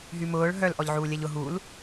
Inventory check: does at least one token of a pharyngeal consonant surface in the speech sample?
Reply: yes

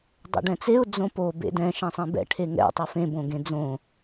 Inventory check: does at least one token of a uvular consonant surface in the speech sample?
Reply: no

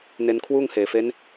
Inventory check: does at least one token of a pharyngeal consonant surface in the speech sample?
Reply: no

